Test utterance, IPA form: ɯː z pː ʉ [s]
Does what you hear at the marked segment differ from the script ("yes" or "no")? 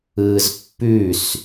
no